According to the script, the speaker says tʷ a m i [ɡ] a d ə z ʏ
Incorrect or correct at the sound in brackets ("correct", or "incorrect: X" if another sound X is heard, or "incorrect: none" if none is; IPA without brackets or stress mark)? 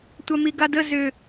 correct